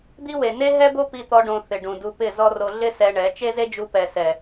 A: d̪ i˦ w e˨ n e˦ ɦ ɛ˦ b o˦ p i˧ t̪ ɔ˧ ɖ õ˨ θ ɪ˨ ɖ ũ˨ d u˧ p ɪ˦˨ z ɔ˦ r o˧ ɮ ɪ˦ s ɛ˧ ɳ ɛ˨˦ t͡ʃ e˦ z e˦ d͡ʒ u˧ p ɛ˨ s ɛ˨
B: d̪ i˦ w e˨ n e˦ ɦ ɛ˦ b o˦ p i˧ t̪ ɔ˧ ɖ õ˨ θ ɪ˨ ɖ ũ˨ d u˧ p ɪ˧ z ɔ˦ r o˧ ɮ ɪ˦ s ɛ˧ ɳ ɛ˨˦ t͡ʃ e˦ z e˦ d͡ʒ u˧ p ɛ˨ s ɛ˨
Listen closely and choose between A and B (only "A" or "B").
A